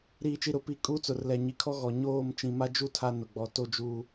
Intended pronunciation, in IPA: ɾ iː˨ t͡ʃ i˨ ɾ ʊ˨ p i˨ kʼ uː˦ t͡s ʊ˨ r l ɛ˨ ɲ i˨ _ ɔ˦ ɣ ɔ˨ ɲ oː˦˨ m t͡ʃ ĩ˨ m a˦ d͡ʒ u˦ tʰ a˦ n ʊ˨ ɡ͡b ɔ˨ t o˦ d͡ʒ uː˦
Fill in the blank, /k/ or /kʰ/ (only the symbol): kʰ